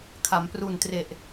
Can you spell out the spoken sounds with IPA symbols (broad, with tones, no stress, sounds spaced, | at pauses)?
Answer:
kʰ a˩˦ m p r u˨˩ n t r e˨˩ ʔ